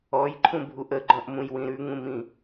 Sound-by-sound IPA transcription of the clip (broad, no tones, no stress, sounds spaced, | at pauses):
ɔ j ǃʰ ũ bʱ u ʔ ə ɡ͡ǃ ɔ̃ ʔ m ũ j w ĩ ɾ ʉ ŋ ũ m ĩ